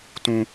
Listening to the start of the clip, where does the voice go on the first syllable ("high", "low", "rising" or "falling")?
high